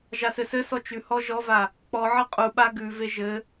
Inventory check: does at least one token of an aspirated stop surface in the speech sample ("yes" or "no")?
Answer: no